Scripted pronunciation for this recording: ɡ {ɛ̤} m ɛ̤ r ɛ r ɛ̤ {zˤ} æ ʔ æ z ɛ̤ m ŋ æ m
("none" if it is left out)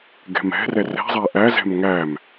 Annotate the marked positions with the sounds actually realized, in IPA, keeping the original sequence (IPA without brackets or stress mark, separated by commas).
ɛ̤, zˤ